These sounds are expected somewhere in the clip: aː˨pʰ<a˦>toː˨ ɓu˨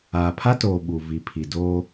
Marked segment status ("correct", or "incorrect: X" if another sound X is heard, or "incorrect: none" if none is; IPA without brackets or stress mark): correct